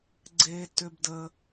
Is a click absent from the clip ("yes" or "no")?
no